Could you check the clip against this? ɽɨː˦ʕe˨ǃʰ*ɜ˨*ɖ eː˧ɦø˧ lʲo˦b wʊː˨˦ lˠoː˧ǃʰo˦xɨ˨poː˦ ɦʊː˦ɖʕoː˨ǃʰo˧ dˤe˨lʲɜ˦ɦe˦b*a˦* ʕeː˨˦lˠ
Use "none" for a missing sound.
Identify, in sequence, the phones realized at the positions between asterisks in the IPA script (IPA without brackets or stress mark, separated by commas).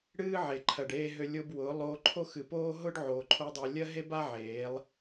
ɜ˨, a˦